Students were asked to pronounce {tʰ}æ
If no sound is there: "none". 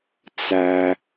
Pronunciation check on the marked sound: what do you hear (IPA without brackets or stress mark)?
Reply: t͡s